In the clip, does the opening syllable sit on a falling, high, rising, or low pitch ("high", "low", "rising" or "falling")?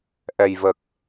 low